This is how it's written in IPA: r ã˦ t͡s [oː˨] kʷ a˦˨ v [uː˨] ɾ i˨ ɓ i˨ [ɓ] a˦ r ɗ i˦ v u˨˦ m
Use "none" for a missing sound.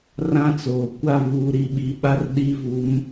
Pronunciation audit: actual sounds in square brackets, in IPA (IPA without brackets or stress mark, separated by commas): oː˨, uː˨, ɓ